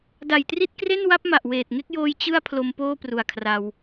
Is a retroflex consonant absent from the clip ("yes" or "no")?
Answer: yes